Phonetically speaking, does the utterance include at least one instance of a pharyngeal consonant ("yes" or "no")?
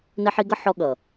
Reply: yes